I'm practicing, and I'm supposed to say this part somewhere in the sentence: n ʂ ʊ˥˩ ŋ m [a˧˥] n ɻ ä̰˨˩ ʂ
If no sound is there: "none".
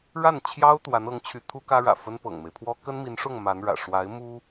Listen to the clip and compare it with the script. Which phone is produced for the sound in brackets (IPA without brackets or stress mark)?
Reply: a˧˥